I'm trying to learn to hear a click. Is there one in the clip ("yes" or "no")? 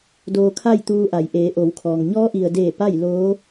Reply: no